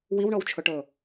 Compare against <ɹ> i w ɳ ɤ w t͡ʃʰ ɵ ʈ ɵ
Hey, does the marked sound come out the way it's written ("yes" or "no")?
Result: no